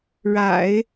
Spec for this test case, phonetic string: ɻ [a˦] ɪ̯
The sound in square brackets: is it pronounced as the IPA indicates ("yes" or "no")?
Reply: no